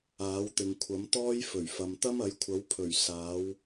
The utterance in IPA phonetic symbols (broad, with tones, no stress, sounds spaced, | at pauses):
aː˨˥ w t̪ ɪ˨ ŋ kʷʰ ɐ˨˥ m t̪ ɔː˥ j f ɵ˨˩ ɥ f ɐ˨ m t̪ ɐ˥ m ɐ˨˥ j kʷʰ ɐ˨˥ w pʰ ɵ˨˩ ɥ s aː˨˥ w